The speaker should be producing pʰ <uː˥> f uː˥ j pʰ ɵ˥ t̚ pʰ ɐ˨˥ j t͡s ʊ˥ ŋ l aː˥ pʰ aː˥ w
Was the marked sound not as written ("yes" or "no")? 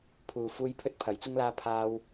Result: yes